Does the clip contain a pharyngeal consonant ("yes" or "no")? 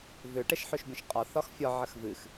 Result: yes